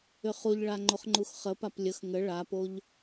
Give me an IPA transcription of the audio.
ʏχuʎɭa ŋ͡ǃoχŋ͡ǃuxχəpap lʲəx ŋə ɭapoʎ

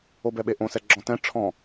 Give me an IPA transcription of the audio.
obɛɓeʔõ sɛɡ͡ǁɔ̃tɛ̃ ʈ͡ʂʰɔ̃

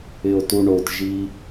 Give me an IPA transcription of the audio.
ɪo̯tuɳotʒi

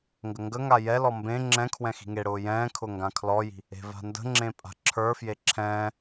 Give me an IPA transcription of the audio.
ŋɡəŋɡəŋa jɛlɔ mbẽ ŋ͡ǁɛ̃ kʰwɛ̃xi̤ŋeɽʊː jɛ̃ːkʰʊ ŋɡãkʰlɔji̤ | e̤va̤ndə̤ŋ͡ǁẽ pʼa̤ǁʰə˞fje ǁʰɛ̃ː

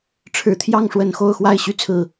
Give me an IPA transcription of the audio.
ʈ͡ʂʰɻ̩˨˦t̪ʰjɑ˥˨ŋʂwə˨˩n xo˥˨ʊ̯xwa˥˨ɪ̯ ɕy˦t͡sʰɹ̩˨˩

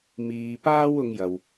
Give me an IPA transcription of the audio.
miː˧paː˥wʊ˧ŋjɐ˨w

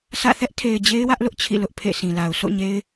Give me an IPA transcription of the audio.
sʰä̰˦˨ θɛ˦ʔtʰe˨ɪ̯ d͡ʑe˦ɪ̯wä˦ʔlʊ˦ʔ t͡ɕʰḭ˦˨lʊ˦ʔ pʰḛ˦˨sʰĩ˨la˨ʊ̯ sʰo̰˦˨ ɲe˦ɪ̯

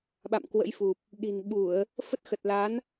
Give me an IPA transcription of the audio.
ɓa̰˧˨mkwə̰˧˥jfu˨˩p̚ | ɗi̤˨˩n ɓu˧˩˨ə̯ | fə˦˥t̚ xə˨˩t̚la˨˦n

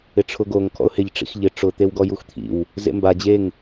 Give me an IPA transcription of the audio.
ɪʈ͡ʂʰʊɡoŋ kʰɔ̰ʊ̯hɪʎ ʈ͡ʂḭxʎɪ ʈ͡ʂʊ t̪ewɡɔjuxt̪ʰḭw | zḛmba d͡ʑeŋ

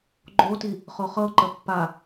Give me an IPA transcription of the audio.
ɡ͡ǃoti | χoχɤǃə pːa

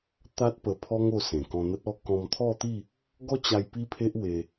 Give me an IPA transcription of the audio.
t̪a˦t̚ pə˧pʰɔ˦ŋo˧ sẽ˨˩kɔ̃˧n̪ə˦t̚ɔ˦ kɔ̃˧mt̪ʰɔ˥˧t̪i˥˧ | ɡɔ˦t͡ɕa˧j pi˦pʰe˦ʔwe˧

